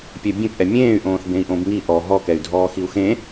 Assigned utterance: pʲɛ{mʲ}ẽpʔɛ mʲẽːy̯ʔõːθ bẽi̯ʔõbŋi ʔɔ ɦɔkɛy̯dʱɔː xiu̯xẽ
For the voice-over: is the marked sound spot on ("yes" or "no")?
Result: no